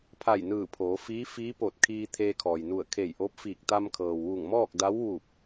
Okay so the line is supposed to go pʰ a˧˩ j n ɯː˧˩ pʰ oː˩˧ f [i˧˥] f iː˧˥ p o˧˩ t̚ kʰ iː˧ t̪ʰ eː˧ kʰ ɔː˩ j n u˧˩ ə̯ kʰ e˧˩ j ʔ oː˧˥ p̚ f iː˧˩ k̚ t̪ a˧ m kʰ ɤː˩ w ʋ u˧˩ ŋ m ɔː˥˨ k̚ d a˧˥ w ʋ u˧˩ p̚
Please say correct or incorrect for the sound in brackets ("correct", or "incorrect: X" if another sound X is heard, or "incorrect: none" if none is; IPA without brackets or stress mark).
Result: incorrect: iː˧˥